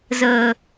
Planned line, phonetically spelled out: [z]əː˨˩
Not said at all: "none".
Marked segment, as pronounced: z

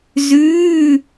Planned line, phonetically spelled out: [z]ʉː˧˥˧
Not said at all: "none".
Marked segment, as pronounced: z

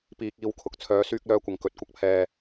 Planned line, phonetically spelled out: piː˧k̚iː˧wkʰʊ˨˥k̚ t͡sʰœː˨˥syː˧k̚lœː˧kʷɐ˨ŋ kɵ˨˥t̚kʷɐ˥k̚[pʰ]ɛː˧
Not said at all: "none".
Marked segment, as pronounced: pʰ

